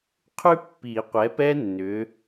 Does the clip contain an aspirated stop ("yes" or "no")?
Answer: yes